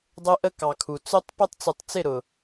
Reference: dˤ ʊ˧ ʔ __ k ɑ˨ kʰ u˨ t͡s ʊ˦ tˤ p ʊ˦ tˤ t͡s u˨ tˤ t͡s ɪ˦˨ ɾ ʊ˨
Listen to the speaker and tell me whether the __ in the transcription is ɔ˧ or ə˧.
ə˧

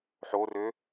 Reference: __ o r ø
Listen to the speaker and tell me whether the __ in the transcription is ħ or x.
ħ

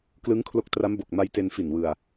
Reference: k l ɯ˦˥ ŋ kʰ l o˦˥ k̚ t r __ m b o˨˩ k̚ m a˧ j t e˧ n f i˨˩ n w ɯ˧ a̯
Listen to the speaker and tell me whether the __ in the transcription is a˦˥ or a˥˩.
a˦˥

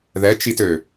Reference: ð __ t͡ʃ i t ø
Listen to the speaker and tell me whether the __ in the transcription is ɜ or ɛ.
ɛ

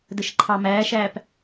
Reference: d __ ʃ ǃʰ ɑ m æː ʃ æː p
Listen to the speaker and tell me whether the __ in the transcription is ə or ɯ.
ə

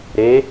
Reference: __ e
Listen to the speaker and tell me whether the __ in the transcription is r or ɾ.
ɾ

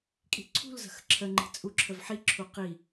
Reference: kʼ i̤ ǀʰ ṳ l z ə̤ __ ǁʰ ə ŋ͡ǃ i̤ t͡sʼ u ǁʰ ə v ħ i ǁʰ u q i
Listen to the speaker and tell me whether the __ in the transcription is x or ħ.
x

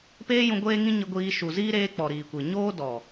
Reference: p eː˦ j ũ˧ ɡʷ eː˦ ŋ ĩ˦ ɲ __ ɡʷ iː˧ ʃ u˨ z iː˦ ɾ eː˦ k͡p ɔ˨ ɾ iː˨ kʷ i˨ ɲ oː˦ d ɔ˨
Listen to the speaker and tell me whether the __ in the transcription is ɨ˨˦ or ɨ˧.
ɨ˧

